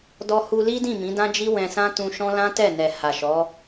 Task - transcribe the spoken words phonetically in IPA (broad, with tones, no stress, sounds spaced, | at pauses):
d ɔ˧ h u˧ l i˦ d ĩ˦˨ m ĩ˨˦ d ã˦ d͡ʒ i˦ w ɛ̃˧ s ã˦ t ũ˧ ʃ ɔ̃˦ l ã˦ t ɛ˦˨ n ɛ˨ h a˨ ʃ ɔ˨˦